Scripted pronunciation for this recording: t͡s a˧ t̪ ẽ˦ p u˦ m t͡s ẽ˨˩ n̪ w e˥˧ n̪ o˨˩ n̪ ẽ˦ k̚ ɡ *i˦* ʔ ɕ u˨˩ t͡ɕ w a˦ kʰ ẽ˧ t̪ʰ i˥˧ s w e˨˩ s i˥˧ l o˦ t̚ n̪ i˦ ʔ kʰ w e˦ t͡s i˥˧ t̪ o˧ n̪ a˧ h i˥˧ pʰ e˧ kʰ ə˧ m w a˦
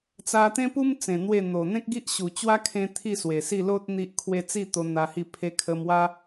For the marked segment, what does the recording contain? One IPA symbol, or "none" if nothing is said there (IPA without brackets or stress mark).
i˦